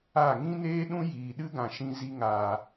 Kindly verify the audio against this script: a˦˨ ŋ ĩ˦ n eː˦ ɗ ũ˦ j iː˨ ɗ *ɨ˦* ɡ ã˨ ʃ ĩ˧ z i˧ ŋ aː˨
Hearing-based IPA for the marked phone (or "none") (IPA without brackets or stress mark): ɨ˦